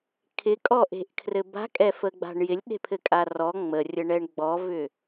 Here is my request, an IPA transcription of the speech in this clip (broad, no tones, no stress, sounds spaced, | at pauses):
kʰ ɪ kʼ ɔ ʔ e̤ ʔ kʰ r ɘ b a̤ kʼ ɛ f ə ɡ͡b a̤ ɳ j ɪ lʲ ɗ e̤ pʰ ɘ kʼ a r ɔ ŋ͡m ə rʲ ə ɳ ɛ ɳ ɡ͡b ɔ v ʏ